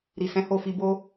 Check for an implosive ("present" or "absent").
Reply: absent